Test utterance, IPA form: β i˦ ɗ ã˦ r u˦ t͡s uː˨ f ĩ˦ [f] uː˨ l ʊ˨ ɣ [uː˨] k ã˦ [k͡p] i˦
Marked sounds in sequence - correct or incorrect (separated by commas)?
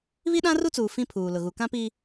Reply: incorrect, incorrect, incorrect